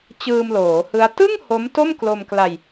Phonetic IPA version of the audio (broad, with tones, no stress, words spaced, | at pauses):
t͡ɕɯː˧mloː˩˦hɯ˦˥a̯ tɯ˥˩ŋ ho˦˥mto˥˩m klo˧mkla˧j